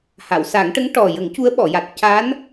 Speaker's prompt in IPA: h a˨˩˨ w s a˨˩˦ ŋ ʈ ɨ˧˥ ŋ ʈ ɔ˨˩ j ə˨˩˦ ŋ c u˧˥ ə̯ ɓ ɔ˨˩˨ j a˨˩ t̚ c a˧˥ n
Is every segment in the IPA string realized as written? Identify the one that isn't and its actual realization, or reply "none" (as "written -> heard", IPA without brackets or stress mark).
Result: ɨ˧˥ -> ə˧˥